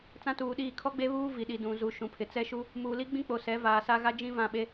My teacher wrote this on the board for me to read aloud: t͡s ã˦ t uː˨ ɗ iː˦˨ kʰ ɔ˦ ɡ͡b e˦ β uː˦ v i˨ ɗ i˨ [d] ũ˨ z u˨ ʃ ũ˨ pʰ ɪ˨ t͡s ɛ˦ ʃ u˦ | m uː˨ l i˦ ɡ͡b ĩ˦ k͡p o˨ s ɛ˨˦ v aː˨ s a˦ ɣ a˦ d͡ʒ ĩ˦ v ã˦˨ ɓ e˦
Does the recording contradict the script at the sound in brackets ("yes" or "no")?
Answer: no